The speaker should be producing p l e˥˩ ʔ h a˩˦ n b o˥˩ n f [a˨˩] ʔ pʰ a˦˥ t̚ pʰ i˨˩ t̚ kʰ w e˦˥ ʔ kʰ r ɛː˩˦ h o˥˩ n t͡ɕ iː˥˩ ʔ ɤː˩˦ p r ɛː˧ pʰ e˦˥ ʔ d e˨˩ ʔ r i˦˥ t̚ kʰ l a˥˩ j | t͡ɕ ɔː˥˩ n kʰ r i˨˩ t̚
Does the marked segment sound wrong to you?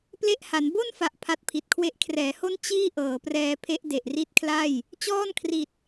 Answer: no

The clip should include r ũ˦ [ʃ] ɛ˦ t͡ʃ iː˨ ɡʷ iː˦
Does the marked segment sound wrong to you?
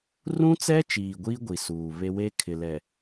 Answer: yes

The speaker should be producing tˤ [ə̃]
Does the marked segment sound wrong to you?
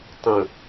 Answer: no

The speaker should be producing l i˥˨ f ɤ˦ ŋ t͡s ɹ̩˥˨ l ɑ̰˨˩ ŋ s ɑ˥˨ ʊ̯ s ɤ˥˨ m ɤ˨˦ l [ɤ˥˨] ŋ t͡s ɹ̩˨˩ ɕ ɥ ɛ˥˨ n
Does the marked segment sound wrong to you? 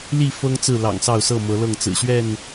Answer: no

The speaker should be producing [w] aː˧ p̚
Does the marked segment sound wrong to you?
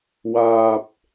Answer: no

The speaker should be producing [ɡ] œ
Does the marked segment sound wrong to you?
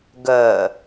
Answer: no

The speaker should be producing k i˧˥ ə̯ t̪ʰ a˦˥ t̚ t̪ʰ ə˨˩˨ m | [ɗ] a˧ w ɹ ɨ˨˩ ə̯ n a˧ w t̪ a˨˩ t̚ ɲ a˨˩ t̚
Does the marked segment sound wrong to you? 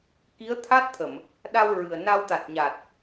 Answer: no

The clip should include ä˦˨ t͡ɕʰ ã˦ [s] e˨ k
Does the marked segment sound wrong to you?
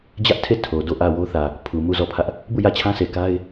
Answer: no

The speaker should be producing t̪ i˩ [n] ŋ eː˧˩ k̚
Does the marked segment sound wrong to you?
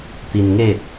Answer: no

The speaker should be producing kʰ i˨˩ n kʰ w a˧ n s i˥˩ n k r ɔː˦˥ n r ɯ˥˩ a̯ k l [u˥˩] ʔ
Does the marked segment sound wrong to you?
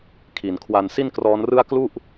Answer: no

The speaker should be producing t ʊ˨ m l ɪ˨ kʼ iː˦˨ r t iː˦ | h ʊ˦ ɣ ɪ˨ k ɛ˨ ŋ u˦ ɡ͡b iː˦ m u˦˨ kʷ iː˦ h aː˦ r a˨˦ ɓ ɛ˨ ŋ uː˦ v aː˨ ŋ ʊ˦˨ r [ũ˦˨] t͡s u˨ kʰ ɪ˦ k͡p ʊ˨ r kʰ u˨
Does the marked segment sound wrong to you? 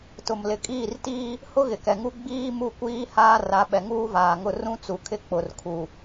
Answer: yes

